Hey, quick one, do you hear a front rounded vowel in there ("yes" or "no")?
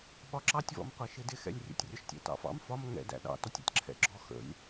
no